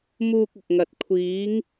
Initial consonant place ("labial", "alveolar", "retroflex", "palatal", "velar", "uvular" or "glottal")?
labial